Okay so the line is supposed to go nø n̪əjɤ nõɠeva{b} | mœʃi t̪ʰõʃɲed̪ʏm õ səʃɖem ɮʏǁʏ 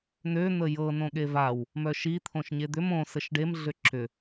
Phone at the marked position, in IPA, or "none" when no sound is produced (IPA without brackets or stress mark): w